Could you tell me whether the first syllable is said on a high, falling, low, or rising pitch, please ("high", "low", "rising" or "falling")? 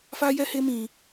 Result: high